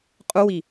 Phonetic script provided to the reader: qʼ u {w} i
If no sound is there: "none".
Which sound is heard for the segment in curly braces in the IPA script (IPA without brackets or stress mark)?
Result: w